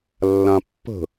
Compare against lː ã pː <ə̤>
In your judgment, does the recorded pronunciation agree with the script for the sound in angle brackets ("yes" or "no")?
yes